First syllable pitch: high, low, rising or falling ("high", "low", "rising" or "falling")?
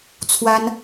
high